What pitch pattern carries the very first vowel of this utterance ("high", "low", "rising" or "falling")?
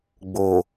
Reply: low